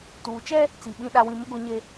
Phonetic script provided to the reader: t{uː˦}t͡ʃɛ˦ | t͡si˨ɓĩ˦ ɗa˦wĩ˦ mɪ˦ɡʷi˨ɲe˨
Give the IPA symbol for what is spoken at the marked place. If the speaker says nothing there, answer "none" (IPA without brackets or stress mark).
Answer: uː˨